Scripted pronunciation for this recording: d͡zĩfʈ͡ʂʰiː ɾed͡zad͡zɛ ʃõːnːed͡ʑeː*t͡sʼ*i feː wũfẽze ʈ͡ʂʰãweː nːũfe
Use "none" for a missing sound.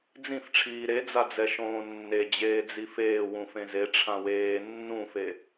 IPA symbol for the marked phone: d͡z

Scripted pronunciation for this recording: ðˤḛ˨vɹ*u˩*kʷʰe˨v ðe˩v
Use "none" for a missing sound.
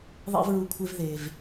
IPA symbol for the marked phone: u˩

